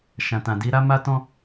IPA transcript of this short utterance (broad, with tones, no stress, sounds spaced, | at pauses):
ʃ ã˨ t ã˨ d i˨˦ ɾ a˦ m a˦ t ɔ̃˦